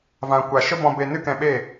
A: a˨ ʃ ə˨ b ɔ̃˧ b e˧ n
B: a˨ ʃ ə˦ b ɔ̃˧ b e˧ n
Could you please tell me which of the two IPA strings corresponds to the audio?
B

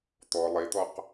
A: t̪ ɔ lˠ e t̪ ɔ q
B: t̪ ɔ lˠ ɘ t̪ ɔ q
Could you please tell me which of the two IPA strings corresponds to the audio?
A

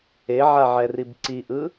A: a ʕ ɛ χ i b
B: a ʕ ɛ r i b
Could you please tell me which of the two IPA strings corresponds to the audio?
B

